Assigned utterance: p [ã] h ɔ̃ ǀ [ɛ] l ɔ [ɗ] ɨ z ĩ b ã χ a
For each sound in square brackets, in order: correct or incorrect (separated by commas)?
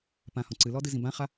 correct, incorrect, incorrect